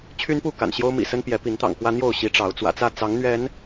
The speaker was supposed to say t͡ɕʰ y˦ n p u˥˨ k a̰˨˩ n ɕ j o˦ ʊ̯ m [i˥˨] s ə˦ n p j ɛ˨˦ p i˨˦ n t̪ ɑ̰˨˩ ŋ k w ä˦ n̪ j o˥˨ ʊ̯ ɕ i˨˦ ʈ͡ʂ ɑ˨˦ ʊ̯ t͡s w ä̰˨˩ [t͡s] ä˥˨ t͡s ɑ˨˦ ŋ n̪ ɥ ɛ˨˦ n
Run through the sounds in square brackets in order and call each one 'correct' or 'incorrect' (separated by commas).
incorrect, correct